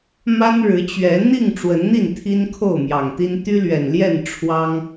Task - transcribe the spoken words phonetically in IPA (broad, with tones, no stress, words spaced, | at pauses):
ma˦nɻɻ̩˨˦t͡ɕɥɛ˨˦ n̪i˥˨ŋ ʈ͡ʂwə˨˦nn̪i˥˨n t̪ʰi˦nkʰo˥˨ʊ̯mjɑ˨˩ŋt̪i˦n t̪y˦lɥɛ˨˩nljɛ˥˨n ʈ͡ʂʰwɑ˦ŋ